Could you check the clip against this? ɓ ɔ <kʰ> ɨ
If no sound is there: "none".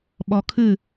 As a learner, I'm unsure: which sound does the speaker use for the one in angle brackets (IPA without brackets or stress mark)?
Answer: kʰ